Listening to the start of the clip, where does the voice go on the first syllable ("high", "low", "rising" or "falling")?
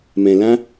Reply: low